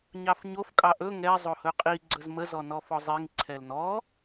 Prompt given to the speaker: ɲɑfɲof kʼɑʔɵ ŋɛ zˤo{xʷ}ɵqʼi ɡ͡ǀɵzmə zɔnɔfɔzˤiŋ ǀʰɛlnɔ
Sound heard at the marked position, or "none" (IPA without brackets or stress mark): h